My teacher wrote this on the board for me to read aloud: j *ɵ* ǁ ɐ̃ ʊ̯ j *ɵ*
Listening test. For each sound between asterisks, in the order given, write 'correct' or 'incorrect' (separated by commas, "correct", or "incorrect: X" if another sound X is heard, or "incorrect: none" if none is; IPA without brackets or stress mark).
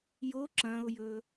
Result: incorrect: o, correct